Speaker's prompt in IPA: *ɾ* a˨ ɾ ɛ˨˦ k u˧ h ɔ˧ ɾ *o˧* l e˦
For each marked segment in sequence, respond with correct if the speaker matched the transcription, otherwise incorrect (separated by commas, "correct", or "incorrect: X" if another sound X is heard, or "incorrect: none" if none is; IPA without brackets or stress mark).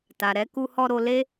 incorrect: t, correct